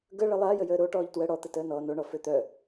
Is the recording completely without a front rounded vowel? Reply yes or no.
no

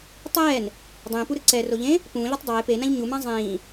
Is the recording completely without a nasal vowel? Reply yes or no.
no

